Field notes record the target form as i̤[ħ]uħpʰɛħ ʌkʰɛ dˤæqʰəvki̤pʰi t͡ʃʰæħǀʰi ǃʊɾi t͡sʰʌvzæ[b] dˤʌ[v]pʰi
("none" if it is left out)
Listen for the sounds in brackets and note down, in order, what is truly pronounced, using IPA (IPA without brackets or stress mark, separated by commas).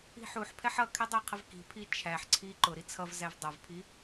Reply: ħ, v, v